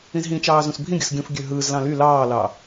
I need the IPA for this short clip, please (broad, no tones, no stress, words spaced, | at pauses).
ĩzɦĩt͡ʃɑː zũsbʱĩɡʲɯs ɡʲũfɡʲø ɦɯːzlɑ̃ ly lɑːlɑ